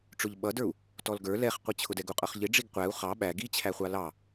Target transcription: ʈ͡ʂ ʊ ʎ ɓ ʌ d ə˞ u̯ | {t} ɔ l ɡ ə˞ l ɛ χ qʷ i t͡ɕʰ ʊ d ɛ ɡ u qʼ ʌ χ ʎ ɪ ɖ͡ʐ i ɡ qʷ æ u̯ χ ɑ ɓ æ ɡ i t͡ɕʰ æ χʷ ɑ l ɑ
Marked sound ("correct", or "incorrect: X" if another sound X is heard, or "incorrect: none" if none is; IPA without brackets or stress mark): correct